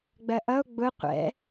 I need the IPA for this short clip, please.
ɡ͡b ɜ ʔ ʌ o̯ ɡ͡b ʊ qʷ ɛ̰

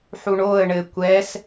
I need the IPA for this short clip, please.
ħ u ɳ o ə̯ ɳ ɘ kʷ ɛ s

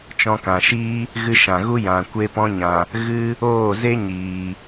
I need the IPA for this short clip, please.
t͡ʃ ɔ̃˧ k ã˨ ʃ iː˦ | ɣ ɨ˧ ʃ ã˨ ɣ u˦ j ã˨ kʷ e˧ p ɔ̃˧ ɲ ã˨ | ɣ ɨ˦ | oː˦˨ z e˦ ɲ iː˨

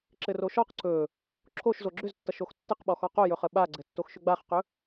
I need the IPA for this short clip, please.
ǁ ɘ r o ʃ ɔ q ǀ ɵ | ǁʰ o ʃ z o ɡ͡ǁ ʏ z tː ʌ ʃ o x tː ɘ q ɓ ɔ x ɔ q o j ɵ χ ə ɓ a ɡ͡ǀ ɘ tː o x ʃ ʏ ɡ͡b a χ q ɵ

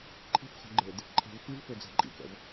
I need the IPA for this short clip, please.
ǃʰ i̤ f χ o̤ ɡ͡ǃ e d | ǃʰ ɛ̤ v f i v f ø d͡z a̤ ǃʼ ḭ k ɛ̰ v

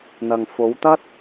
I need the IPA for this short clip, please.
n̪ ɐ˨ ŋ f o˨˧ w t̪ ɐ˥ t̚

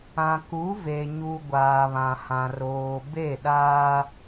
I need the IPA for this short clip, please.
ã˨ k u˨˦ v e˨ ɲ u˨ ɡʷ aː˨ β ã˨ h ã˨ r oː˨ b e˦˨ ɗ aː˦

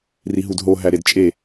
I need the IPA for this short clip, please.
r i ɦ u d ɦ o ɦ æ ɾ e d t͡ʃʼ e

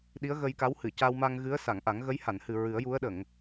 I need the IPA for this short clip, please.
ɗ i˧˥ ə̯ ɣ ə˧ j k a˧˥ w h ɨ˨˩˨ c a˧ w m a˧ ŋ ɣ ɨ˧˥ ə̯ s a˨˩˨ ŋ ʔ a˨˩˦ ŋ ɣ ə˧˥ j h a˨˩˨ n h ɨ˨˩ ɹ ɨ˨˩˦ ə̯ j u˧˥ ə̯ ɗ ə˨˩˨ ŋ

